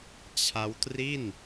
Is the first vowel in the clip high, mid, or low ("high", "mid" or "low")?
low